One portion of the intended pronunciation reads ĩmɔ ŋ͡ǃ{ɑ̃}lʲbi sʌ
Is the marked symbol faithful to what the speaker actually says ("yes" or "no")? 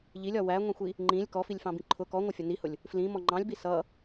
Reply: yes